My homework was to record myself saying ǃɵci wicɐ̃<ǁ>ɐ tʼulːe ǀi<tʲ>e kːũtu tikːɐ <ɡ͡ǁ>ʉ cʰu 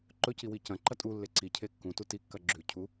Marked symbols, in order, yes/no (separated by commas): no, no, yes